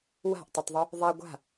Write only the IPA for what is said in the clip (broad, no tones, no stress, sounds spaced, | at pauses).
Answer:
w a̤ ʔ tˤ ʌ tˤ ðˤ u | ðˤ a ɡʷ a̤